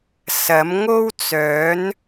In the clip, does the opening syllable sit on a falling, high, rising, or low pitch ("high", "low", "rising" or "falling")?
rising